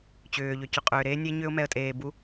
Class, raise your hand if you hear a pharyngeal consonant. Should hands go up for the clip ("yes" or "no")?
no